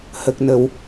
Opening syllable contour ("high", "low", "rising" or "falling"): low